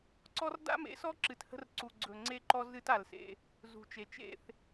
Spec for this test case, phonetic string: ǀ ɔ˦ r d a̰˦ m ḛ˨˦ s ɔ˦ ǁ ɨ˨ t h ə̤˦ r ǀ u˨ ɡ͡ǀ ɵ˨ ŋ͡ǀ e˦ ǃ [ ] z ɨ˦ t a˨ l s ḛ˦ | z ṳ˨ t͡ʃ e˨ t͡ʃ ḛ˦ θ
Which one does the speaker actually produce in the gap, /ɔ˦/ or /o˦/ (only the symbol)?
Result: ɔ˦